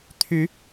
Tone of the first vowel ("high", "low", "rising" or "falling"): rising